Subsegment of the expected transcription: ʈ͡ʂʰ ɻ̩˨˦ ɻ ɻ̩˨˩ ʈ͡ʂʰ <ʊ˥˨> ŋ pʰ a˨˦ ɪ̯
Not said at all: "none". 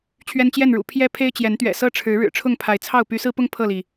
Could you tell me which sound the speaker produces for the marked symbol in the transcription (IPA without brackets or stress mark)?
ʊ˥˨